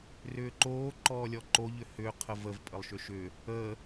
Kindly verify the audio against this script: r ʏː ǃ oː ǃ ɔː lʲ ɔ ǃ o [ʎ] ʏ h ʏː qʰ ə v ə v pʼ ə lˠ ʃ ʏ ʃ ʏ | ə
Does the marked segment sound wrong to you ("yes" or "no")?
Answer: no